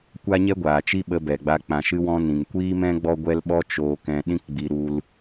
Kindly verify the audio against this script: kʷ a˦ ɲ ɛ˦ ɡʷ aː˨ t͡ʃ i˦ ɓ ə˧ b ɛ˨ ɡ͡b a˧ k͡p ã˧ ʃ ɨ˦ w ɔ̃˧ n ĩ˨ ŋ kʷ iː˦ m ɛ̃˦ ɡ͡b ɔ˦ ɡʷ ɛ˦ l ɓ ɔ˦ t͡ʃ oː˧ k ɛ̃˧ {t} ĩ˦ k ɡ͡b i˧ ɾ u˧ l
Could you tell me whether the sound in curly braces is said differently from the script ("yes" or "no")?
yes